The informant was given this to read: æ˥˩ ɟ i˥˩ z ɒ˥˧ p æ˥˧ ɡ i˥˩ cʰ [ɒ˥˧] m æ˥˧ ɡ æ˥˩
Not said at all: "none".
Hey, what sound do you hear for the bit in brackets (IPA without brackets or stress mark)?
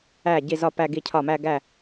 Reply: ɒ˥˩